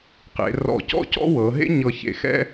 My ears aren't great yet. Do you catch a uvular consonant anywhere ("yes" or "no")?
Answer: yes